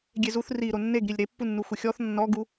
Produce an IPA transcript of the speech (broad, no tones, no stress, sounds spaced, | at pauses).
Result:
ɡʲ e z u θ r i ɾ o nː e ɡ ɾ i lʲ ɾ e pː u nː u xʷ ɪ xʲ ɔ θ nː ɔ ɡ u